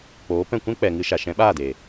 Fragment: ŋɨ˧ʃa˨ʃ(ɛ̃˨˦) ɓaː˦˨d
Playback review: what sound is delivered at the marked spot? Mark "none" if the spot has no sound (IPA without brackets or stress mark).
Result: ɛ̃˨˦